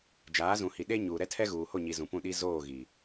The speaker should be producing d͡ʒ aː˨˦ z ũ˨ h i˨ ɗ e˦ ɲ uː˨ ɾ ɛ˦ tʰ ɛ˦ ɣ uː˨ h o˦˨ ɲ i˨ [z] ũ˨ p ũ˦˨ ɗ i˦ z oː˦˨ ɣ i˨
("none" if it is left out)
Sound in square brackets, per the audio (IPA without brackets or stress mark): z